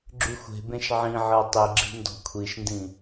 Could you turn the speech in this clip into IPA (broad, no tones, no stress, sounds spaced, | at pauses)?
ɡ͡ǁ y xʷ e̤ b ẽ ʃ ʕ ĩ ʕ ɤ tˤ i ɡ͡ǁ i̤ n d ɔ̤ kʷʰ i ʃ n d ĩ